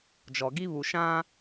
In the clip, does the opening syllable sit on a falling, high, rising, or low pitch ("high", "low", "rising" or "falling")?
low